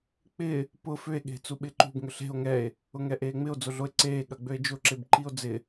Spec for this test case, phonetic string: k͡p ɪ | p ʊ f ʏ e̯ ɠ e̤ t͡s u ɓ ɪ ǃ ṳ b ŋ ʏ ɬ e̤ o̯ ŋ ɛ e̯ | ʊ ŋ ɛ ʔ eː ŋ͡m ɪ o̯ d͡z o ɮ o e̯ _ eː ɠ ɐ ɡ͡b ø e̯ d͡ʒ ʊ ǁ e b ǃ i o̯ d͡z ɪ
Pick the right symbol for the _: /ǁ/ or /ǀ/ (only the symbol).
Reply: ǀ